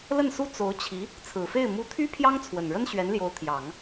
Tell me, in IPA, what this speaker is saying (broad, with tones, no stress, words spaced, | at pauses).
lə˥˩nsu˥ t͡so˧˥ʊ̯t͡ɕʰi˧˥ | t͡sʰɹ̩˨˩fe˥˩ɪ̯ mu˧˥t̪ʰy˥ pʰjɑ˥ŋt͡sʰwə˨˩nɻə˥n ɕɥɛ˧˥nljo˧˥ʊ̯ t̪ʰjɑ˨˩˦ŋ